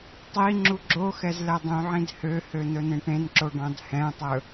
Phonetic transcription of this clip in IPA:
tˤ i ŋ͡ǁ u ɡ͡ǁ o x ɛ z l ɛ dˤ ũ ʕ ĩ d h ø h ø n̪ ɵ n̪ ẽ ʈ ẽ n ǁ o ɖ ɑ̃ d h ɛ̃ tˤ ɵ

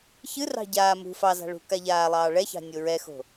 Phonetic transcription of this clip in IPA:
ç ɨ r ɑ̤ ɟ aː m ṳ f ɑ z a̤ ɭ ṳ k a ʎ aː lˠ ɑː ɭ ɛ ç ɑ̤ nʲ o ɹ ɛ x o̤

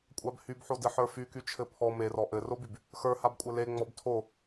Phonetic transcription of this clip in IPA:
kʷʼ a b h y b ħ o d ɘ ħ ə˞ f y k y t͡ʃʰ ɘ pʰ ɔ m e r ɔ ʔ ɘ r o b y b | x ə˞ h a b kʷʼ ɘ l e ŋ͡m ɔ b tʰ o

